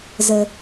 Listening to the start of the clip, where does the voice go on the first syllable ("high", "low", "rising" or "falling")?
low